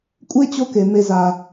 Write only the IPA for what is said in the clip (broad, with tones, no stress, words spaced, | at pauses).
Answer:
kʷʼe˥t͡ɕo˦ke˩ me˨za˩